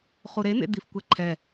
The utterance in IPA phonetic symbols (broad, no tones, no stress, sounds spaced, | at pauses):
χ u ɾ e n̪ ḛ d̪ i f kʷ ɛ ǃʰ ɛ